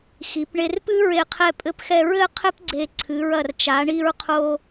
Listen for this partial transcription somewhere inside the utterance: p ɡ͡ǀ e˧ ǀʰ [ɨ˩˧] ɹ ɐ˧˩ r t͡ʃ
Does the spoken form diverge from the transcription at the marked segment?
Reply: no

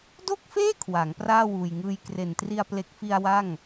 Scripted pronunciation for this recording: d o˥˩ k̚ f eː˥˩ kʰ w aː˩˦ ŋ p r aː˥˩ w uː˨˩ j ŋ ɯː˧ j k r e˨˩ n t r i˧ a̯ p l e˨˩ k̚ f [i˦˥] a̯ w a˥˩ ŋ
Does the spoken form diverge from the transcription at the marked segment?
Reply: yes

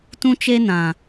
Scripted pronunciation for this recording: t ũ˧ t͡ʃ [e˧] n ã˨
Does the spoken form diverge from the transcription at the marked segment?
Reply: no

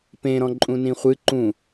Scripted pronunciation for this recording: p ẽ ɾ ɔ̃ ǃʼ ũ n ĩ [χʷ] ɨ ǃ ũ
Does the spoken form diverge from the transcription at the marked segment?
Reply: no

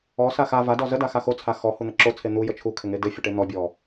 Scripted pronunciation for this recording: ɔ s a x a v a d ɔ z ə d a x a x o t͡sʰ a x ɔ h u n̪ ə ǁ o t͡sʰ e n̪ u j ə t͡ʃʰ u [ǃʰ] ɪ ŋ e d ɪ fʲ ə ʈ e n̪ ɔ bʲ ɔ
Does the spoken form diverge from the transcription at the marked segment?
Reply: yes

